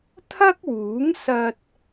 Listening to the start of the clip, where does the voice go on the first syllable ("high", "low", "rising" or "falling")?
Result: high